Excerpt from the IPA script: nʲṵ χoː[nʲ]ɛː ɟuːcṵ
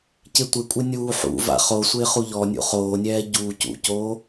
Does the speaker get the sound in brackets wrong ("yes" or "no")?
no